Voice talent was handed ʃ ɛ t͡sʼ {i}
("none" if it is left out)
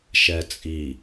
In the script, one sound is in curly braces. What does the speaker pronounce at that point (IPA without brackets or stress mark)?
i